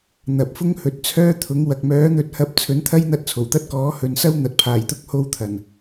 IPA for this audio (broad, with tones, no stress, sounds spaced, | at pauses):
n̪ ɐ˨ p̚ f ʊ˥ ŋ h ɵ˨ t̚ t͡sʰ œː˥ t̪ʰ ʊ˨˥ ŋ w ɐ˨ k̚ m œː˨˥ n̪ ɵ˧ t̚ h ɐ˧ p̚ t͡sʰ ɵ˨˥ n t̪ʰ ɐ˥ j n̪ ɐ˧ t̚ t͡sʰ o˨˩ w t̪ ɐ˥ t̚ k ɔː˨˥ h ɵ˨˧ n s ɐ˥ w n̪ ɐ˨˥ t̚ pʰ aː˨˩ j t̪ ʊ˥ k̚ h o˧ w t̪ʰ ɐ˨˩ n